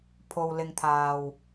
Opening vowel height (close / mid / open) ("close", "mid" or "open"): mid